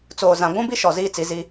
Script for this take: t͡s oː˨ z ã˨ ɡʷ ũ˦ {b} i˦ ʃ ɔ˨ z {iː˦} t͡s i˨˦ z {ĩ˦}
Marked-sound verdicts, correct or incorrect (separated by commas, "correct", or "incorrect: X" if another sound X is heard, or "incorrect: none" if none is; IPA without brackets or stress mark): correct, correct, incorrect: i˦